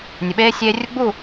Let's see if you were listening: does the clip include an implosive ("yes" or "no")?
yes